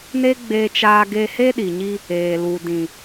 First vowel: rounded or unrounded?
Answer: unrounded